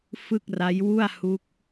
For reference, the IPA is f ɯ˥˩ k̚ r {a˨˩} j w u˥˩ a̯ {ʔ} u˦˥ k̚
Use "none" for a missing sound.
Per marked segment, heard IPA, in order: a˦˥, h

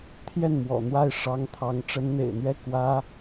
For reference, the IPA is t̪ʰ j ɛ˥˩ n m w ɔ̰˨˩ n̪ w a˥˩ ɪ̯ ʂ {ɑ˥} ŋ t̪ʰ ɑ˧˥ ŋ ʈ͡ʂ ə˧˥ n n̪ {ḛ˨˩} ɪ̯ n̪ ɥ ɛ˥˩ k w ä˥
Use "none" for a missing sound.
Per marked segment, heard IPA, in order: ɑ˧˥, ḛ˨˩

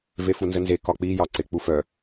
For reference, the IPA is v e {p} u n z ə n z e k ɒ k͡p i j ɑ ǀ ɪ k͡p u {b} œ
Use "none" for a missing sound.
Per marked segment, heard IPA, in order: f, f

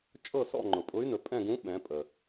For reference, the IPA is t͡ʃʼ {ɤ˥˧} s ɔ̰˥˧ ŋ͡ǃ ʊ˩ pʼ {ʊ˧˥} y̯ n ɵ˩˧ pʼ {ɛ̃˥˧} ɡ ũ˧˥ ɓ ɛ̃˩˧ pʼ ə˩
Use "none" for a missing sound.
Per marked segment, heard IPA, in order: ɤ˥˧, ʊ˧˥, ɛ̃˥˧

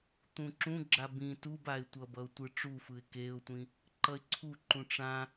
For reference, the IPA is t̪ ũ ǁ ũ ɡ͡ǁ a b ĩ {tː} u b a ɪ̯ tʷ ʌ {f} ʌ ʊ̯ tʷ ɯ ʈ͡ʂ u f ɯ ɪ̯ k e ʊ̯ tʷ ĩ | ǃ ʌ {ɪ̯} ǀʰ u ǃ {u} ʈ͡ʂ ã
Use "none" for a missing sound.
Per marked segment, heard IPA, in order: t, b, ɪ̯, ũ

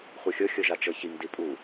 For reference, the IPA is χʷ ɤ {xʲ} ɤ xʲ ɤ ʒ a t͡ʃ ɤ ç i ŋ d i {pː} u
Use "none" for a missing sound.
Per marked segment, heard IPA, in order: xʲ, pʼ

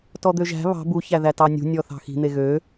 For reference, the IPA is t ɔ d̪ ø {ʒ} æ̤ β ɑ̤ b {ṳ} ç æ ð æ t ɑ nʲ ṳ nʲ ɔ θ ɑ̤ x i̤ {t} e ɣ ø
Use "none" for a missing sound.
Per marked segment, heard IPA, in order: ʒ, u, n̪

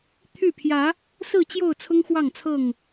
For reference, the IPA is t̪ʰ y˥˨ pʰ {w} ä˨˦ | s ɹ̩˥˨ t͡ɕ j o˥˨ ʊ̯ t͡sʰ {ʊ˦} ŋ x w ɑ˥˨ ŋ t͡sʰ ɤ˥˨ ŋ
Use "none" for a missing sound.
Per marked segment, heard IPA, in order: j, ʊ˦

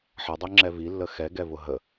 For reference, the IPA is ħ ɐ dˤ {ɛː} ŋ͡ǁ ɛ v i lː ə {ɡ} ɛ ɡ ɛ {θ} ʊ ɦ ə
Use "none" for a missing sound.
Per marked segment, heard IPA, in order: ɛ, x, v

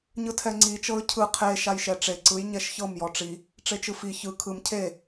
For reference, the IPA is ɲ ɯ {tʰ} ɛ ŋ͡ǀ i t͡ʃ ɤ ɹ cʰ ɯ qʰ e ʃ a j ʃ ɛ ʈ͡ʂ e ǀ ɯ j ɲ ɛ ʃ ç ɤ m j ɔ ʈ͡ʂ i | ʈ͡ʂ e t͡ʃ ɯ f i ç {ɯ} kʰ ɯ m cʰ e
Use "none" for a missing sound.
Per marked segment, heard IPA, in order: tʰ, ɯ

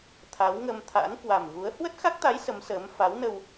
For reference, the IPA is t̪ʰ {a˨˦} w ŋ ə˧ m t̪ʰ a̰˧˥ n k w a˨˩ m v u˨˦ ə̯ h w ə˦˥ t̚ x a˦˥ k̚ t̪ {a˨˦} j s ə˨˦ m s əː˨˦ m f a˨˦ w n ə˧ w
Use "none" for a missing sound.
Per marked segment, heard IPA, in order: a˨˦, a˨˦

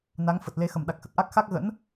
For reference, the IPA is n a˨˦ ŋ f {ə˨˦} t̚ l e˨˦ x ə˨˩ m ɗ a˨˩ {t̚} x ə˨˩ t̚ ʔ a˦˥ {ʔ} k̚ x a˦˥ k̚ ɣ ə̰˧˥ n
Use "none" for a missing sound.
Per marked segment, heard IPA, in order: ə˨˩, k̚, none

